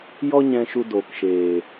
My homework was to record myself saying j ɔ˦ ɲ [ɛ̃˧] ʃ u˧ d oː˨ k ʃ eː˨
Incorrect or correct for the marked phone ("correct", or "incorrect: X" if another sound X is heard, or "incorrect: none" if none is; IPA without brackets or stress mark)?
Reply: correct